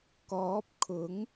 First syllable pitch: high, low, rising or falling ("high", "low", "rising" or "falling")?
rising